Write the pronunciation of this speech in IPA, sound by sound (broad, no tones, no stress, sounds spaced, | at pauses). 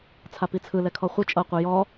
t͡sʰ a p i t͡sʰ ɯ l ɛ kʰ ɔ χʷ ɯ t͡ʃʼ ɤ qʷ ɯ j ɔ